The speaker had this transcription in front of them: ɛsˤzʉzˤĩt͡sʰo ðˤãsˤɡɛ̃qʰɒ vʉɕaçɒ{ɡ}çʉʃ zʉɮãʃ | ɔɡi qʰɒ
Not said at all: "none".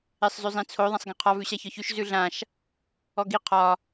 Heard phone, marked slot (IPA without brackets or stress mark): none